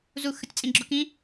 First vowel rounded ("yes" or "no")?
yes